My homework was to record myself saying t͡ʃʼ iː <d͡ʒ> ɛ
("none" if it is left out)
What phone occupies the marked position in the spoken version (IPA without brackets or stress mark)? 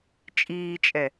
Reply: t͡ʃʼ